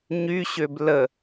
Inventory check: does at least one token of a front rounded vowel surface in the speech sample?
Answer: yes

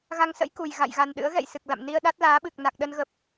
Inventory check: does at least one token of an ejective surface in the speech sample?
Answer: no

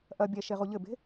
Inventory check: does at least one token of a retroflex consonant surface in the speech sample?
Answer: no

